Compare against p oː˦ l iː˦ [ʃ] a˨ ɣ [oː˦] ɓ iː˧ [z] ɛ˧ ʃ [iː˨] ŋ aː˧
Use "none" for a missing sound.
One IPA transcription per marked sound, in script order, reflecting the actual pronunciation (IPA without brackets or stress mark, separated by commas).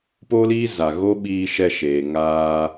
z, o˦, ʃ, eː˨